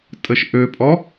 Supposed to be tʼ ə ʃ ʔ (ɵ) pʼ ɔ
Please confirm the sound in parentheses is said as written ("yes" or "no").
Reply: no